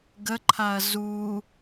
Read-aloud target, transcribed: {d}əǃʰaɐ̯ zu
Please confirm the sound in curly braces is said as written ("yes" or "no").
no